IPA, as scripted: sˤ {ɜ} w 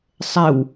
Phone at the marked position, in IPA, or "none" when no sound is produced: ɛ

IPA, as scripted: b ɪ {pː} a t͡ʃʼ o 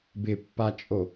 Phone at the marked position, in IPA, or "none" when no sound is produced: pː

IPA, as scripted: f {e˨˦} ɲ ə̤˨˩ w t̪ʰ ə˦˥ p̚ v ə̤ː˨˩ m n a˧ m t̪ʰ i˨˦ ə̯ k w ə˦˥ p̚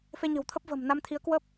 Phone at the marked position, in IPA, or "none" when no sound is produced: e˧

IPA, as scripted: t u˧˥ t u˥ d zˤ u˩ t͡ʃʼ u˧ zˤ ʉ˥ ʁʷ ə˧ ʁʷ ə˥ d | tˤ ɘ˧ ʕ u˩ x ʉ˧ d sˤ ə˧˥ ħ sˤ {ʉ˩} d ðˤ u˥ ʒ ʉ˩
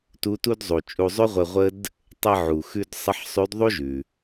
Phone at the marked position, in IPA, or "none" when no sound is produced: ʉ˧˥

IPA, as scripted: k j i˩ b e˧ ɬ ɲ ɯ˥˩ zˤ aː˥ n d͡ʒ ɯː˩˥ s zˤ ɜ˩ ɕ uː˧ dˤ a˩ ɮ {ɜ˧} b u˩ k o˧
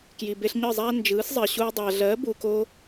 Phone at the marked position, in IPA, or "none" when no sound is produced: ɜ˩˥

